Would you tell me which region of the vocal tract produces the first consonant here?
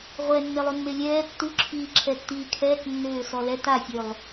uvula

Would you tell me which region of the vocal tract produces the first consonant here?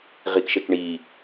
uvula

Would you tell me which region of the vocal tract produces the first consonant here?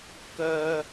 velum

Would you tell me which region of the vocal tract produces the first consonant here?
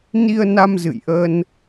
tongue tip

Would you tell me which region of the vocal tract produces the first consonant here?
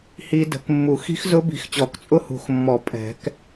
throat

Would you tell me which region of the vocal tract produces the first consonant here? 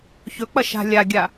palate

